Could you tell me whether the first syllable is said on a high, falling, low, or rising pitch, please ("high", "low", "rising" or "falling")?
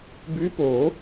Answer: rising